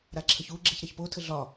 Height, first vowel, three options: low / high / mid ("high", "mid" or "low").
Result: low